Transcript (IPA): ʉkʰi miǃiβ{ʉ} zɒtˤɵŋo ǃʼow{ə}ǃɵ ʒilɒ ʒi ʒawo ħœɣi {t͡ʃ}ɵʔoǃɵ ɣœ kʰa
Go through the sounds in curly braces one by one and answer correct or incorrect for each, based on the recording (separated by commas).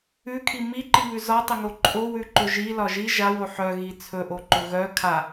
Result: correct, incorrect, incorrect